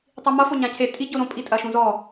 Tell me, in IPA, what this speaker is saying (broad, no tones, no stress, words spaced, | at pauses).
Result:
tˤimʌ foɲãcʰe tʼi ɟoɾõ pʼitʼɐʃũzɔ